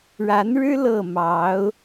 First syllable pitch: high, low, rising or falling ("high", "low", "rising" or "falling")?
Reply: rising